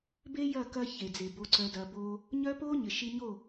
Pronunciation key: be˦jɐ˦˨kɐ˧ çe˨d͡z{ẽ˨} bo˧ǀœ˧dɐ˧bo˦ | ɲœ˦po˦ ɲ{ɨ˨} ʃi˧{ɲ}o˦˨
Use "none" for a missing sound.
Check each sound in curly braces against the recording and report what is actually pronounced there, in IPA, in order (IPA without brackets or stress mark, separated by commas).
e˨, ɪ˨, ɲ